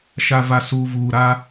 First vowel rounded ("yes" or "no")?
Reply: no